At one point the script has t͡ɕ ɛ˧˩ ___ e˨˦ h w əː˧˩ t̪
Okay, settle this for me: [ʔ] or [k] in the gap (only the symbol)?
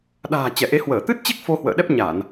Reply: ʔ